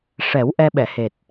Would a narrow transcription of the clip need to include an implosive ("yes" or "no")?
yes